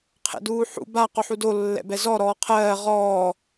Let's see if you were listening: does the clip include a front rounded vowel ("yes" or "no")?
no